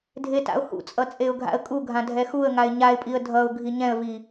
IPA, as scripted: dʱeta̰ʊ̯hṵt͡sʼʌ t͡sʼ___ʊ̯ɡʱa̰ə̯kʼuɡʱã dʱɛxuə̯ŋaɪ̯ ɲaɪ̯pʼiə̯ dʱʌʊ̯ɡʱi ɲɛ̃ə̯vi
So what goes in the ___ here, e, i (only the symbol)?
e